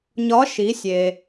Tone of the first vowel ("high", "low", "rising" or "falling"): rising